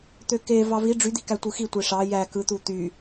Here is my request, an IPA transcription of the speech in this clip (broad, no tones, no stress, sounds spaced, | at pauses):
t̪ ø k e v ɑ v i ɖ͡ʐ y d̪ i k æ tʷ ɯ x i tʷ e ʂ ɑ j æ k ɯ t̪ u t̪ y